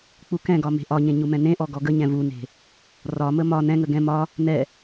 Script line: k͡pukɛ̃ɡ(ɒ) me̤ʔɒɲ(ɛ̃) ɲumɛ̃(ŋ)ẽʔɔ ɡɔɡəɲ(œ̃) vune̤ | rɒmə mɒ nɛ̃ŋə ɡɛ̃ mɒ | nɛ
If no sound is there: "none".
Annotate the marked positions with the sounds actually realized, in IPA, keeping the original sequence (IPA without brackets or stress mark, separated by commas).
ɒ, ẽ, n, ɛ̃